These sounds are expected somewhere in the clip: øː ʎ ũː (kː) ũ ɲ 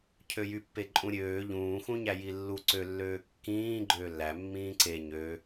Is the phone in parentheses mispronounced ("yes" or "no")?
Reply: yes